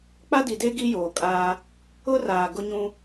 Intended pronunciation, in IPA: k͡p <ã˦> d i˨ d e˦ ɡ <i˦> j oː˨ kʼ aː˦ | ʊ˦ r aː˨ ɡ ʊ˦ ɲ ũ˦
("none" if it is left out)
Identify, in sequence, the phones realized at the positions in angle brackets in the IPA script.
a˦, i˦

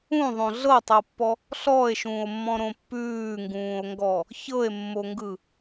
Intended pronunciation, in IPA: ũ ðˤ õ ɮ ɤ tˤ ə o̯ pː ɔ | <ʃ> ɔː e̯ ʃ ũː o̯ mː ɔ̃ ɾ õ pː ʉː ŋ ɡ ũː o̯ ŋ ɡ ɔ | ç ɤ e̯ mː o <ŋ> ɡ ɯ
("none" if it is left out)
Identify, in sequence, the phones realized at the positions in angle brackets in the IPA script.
ɬ, ŋ

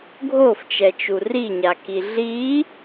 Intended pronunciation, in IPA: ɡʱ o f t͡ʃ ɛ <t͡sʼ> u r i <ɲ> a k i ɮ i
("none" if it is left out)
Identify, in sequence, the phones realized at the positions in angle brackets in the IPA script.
t͡ʃ, ɲ

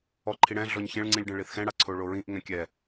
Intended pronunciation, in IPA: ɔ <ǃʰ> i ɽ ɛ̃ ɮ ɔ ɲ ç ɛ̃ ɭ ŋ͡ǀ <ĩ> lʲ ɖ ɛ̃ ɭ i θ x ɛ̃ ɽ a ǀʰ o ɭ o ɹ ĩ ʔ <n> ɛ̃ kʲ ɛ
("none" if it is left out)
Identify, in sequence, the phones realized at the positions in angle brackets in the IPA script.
ǃʰ, ĩ, ŋ

